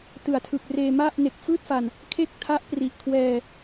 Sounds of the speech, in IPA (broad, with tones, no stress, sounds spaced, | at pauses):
t ɯ˨˩ a̯ tʰ ɯ˨˩ k̚ r eː˧ m a˥˩ ʔ n e˨˩ k̚ f ɯː˥˩ t̚ f a˨˩ n | kʰ e˥˩ k̚ tʰ a˦˥ ʔ p r i˨˩ ʔ kʰ w ɛː˧